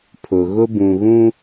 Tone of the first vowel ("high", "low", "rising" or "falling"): low